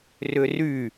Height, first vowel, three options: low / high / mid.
high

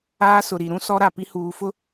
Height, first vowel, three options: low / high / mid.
low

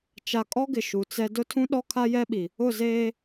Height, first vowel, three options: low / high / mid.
low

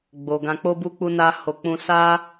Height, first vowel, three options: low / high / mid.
mid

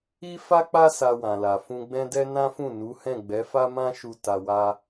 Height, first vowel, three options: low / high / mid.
high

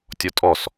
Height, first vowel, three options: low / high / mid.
mid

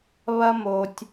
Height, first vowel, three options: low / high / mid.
low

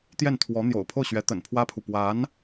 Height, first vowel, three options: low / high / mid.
mid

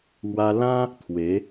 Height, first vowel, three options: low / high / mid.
low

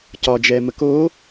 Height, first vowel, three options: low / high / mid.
low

